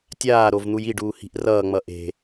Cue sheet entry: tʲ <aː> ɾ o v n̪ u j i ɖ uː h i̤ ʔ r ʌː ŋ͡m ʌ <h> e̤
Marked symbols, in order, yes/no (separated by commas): yes, no